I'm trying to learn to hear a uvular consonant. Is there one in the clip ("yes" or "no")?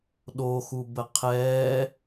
yes